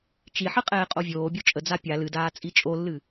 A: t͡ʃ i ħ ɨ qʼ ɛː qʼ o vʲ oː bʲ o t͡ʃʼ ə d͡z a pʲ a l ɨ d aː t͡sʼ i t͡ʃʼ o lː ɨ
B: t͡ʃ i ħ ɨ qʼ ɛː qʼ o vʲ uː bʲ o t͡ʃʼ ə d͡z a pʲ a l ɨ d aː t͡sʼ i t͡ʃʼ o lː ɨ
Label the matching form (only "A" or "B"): A